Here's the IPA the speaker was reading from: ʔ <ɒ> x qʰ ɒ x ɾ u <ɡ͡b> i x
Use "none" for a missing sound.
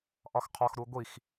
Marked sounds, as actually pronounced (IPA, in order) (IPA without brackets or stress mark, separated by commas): ɒ, ɡʷ